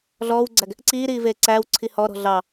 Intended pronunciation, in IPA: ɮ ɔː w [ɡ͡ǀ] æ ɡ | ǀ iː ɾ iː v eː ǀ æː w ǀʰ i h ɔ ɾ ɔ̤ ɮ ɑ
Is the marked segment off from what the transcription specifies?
no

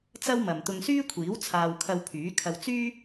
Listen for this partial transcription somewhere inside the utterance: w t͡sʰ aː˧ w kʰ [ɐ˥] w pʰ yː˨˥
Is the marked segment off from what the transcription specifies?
yes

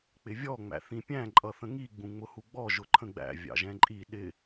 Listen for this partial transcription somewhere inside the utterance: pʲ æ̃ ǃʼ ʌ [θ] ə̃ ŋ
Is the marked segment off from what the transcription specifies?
no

